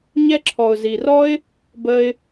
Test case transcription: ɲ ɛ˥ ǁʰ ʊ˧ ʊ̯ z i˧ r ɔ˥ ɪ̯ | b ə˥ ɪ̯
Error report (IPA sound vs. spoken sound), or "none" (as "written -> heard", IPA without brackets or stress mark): ʊ˧ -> ɔ˧